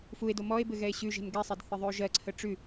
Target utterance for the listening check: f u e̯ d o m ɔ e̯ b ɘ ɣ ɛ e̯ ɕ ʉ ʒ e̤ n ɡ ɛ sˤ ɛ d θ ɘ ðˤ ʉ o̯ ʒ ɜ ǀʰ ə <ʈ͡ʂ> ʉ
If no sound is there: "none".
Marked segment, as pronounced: ʈ͡ʂ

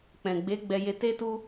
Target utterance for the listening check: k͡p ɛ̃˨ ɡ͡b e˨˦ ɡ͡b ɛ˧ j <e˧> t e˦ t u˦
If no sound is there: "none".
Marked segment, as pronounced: e˧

